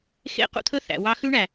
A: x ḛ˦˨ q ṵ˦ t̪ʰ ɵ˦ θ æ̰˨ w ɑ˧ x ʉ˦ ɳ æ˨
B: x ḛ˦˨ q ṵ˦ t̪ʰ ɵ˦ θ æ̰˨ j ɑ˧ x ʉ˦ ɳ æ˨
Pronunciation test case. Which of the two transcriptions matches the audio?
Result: A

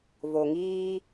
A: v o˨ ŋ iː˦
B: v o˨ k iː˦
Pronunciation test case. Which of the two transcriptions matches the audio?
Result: A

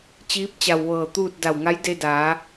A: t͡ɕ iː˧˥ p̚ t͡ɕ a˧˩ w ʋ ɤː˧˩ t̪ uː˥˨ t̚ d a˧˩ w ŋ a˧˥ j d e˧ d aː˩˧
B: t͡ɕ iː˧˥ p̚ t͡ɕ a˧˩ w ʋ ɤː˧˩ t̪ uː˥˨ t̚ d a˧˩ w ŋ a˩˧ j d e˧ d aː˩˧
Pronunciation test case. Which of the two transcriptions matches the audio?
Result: A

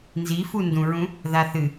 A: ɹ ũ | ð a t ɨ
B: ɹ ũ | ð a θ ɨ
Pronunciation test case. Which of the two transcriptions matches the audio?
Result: B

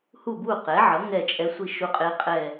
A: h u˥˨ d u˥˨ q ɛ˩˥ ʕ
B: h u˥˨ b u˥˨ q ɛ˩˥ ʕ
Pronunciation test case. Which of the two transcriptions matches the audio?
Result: B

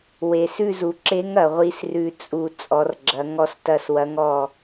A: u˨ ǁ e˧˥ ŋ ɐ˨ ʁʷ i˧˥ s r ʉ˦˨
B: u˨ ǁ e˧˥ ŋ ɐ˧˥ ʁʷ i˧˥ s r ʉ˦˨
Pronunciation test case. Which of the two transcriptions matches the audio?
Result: A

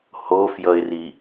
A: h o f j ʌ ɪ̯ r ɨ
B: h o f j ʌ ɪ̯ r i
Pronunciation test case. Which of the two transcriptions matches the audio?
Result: B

